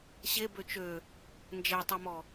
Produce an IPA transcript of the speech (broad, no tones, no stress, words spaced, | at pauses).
ɕe bøt͡ʃø | nd͡ʒɛtˤɛmɔ